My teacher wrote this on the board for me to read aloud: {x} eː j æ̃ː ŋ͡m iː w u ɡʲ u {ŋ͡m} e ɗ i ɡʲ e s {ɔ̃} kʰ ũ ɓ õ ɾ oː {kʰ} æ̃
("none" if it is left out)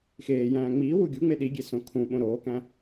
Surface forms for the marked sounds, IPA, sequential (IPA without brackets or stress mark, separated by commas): x, ŋ͡m, õ, k